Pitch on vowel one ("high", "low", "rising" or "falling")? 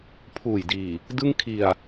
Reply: low